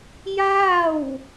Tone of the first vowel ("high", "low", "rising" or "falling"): falling